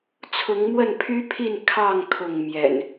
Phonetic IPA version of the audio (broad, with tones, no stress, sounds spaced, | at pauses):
t͡sʰ ʊ˨˦ ŋ m w ə˥˨ n pʰ y˦ pʰ i˥˨ n kʰ ɑ˥˨ ŋ kʰ ʊ˥˨ ŋ m j ɛ̰˨˩ n